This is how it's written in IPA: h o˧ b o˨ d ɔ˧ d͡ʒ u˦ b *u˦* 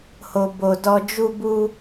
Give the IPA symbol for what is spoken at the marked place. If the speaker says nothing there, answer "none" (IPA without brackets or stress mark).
u˦